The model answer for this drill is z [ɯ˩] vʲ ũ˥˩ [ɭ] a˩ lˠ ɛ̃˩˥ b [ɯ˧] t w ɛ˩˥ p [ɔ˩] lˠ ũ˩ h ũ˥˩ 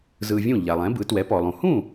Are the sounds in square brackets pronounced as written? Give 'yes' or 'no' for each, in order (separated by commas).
no, no, no, yes